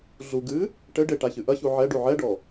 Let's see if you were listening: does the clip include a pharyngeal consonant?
yes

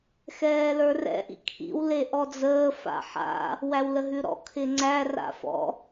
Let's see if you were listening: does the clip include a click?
yes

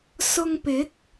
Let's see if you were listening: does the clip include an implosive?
no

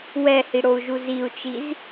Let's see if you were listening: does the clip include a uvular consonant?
no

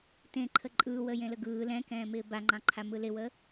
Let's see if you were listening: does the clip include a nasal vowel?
yes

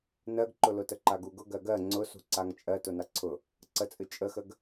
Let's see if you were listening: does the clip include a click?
yes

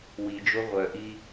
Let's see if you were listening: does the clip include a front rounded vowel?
yes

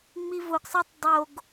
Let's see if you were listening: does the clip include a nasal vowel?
no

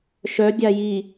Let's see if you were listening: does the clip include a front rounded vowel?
yes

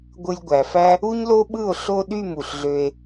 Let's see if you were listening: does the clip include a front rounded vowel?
yes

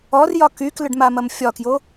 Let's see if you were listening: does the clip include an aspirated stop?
no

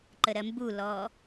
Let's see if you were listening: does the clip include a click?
yes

